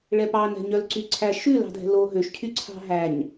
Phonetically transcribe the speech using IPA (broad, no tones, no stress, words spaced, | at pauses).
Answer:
ɭɛpɑnɛ̤ ɲœlǀyǀʰæ ʃʉlɑ̤dʱɛ̤ lo ɦøʃcʰy ǀʰɑ̤ɦæɲ